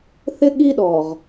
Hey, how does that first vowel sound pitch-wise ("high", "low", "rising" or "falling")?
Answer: high